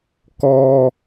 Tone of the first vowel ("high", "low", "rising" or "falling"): high